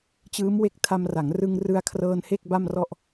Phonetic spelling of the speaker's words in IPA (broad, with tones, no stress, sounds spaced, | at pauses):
t͡ɕ ɯː˦˥ m w e˦˥ k̚ tʰ a˧ m r a˩˦ ŋ r ɯ˧ ŋ r ɯ˧ a̯ kʰ r ɤː˧ n h e˥˩ k̚ b a˥˩ m r ɔ˥˩ ʔ